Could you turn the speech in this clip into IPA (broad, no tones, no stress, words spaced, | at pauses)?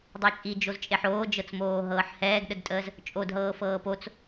dˤɤt͡ʃʼid͡ʒoz t͡ʃʼeħoːd͡ʒɤt͡smoː ɦɤːħhɛːɡɗədtʼəːz | t͡ʃʼodɦɤːfɤː pot͡s